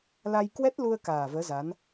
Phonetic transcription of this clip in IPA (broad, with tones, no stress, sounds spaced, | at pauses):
l a˧ j k w ɛ˦˥ t̚ l u˧ ə̯ k aː˨˩ v əː˨˦ z a˨˦ n